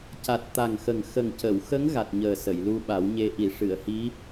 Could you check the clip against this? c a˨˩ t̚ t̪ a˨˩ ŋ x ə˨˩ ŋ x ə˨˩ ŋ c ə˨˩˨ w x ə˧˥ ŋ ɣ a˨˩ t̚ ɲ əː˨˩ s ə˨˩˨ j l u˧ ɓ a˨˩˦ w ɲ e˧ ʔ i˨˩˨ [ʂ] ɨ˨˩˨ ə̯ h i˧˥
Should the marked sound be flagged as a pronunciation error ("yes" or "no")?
no